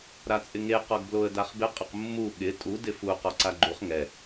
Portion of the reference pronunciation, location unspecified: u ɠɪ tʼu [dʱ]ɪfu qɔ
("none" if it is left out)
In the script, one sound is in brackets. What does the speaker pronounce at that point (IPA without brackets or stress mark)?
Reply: d